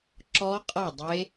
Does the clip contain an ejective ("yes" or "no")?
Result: yes